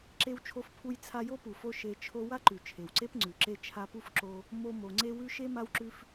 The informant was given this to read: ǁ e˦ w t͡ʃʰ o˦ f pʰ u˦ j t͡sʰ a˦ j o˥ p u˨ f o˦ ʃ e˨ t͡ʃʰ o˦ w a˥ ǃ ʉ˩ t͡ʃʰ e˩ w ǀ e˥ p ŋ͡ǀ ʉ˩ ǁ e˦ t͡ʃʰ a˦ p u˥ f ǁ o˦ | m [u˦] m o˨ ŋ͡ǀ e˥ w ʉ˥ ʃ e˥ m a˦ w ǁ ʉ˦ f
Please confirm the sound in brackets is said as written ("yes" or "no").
no